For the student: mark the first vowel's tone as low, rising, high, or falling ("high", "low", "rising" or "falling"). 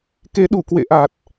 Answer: rising